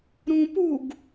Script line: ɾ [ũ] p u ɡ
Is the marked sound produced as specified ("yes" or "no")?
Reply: yes